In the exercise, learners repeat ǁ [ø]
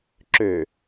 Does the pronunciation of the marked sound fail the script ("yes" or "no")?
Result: no